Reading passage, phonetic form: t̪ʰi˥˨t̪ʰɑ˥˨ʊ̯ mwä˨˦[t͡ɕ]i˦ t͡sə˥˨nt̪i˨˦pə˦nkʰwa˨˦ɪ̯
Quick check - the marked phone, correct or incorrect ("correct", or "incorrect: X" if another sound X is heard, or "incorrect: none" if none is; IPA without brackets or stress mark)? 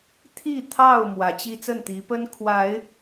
correct